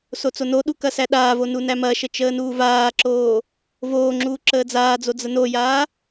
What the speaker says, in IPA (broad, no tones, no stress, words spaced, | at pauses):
sot͡sonoɗu kɐsæɗaːvo nunæmɐʃə t͡ʃəːnuːvaːǁoː | voː ŋ͡ǁuːǁəːd͡zaːd͡zo d͡zənojaː